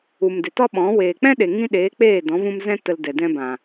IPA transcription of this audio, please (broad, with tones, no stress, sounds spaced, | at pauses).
u˨ m d e˨ t ɔ˦ ɓ ɔ̃˨˦ w eː˨ k͡p ɛ̃˦ ɗ e˨ ŋ ĩ˧ ɗ eː˨˦ k͡p eː˦˨ d ɔ̃˨˦ v ũ˧ m z ɛ̃˦ t ə˧ l d ɛ˨ d ɛ̃˧ b ã˨